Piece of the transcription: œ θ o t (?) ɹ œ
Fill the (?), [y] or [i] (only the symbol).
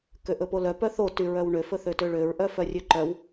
y